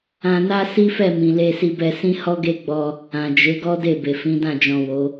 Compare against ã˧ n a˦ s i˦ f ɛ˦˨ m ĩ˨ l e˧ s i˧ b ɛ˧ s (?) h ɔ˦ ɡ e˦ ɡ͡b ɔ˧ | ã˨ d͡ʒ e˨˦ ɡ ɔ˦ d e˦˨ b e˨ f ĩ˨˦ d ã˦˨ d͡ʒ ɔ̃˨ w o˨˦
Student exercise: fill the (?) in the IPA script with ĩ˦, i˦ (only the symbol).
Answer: ĩ˦